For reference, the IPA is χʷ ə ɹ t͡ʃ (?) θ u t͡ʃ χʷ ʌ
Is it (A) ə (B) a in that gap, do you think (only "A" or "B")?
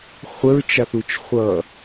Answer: B